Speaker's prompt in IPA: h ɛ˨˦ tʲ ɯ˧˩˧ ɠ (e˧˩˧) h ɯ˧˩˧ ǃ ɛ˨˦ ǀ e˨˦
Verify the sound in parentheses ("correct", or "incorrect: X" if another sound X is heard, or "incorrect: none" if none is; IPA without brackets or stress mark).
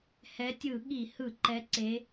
incorrect: i˧˩˧